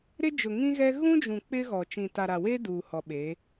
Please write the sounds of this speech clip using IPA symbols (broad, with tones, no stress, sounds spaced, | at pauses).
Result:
ɾ ɪ˦ d͡ʒ ʊ˨ ŋ ĩ˦ ɣ ɛ˦ ɣ ũ˦ d͡ʒ ũ˨ k͡p ɪ˦ ɣ ɔ˨ t͡ʃ ĩ˨ t a˨ ɾ a˨ w e˦ d uː˨ h ɔ˨ ɓ e˨˦